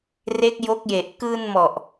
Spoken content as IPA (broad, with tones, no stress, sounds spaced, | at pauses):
r e˦˥ k̚ j o˦˥ k̚ j e˨˩ ʔ k ɯː˧ n m ɔ˨˩ ʔ